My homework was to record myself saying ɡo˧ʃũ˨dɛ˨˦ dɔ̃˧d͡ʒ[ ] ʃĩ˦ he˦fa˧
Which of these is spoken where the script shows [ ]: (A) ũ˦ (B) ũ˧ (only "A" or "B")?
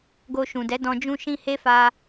A